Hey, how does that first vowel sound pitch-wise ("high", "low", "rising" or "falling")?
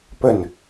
falling